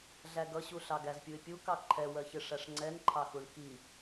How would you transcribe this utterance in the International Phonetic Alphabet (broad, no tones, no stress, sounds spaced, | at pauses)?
ɮ æ ɡ ʌ ɕ u ɬ ɑ ɡ æ z pʲ u ɪ̯ pʲ u k ɑ ǃʰ ɛ w ɜ ç ɪ ʂ æ ʂ ŋ͡ǀ ɛ n ǃʰ ɑ x u ɳ k i